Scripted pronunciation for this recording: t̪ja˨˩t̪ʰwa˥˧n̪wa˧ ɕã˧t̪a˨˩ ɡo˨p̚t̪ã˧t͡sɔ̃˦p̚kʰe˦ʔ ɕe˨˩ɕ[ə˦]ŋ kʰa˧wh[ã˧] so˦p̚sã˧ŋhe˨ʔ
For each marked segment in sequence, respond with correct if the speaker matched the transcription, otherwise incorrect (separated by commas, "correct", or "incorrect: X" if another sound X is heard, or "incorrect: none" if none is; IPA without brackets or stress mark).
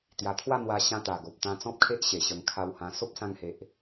incorrect: ə˧, correct